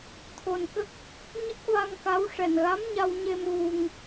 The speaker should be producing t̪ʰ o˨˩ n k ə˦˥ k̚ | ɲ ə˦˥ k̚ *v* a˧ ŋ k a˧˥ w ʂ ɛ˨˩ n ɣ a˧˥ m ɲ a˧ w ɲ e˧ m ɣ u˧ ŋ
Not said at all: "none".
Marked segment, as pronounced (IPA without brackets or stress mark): v